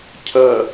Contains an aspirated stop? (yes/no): yes